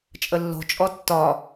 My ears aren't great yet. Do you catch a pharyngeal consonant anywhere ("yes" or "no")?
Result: no